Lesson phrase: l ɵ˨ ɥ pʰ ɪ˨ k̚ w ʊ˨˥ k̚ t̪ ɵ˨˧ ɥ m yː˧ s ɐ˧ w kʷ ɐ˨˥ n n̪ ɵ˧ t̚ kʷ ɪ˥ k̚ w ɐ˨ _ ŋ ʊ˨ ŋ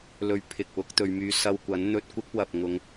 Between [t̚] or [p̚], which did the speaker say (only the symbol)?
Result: p̚